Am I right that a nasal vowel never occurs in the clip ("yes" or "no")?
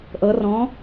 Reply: no